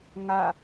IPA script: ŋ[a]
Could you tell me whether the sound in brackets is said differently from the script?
no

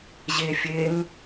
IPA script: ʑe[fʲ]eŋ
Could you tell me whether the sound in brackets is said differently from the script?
no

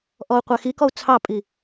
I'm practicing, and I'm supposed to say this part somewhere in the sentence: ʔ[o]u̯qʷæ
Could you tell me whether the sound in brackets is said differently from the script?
yes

